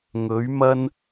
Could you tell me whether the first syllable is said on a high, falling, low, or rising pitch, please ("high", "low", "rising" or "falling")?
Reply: rising